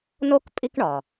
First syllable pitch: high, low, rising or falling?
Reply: high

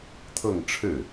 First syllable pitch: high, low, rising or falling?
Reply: falling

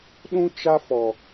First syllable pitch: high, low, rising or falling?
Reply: high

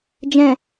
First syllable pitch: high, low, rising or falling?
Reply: low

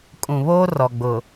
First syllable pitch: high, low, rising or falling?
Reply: low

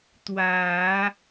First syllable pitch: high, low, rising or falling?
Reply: low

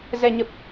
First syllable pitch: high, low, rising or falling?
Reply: low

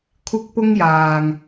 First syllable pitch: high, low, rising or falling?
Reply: high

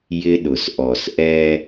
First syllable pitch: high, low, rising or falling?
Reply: high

